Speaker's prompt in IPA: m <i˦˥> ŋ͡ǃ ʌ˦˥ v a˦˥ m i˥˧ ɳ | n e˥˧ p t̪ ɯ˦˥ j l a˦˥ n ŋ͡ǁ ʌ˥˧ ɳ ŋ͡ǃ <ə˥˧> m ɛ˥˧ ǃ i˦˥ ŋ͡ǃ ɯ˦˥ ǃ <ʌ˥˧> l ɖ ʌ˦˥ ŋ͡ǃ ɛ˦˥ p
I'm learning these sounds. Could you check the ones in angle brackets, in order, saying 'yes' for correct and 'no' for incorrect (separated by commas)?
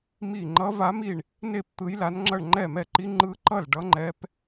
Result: no, no, yes